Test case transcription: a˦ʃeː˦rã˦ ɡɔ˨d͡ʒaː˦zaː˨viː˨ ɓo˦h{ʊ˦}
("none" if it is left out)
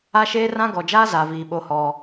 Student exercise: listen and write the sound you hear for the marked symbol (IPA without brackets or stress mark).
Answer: ɔ˦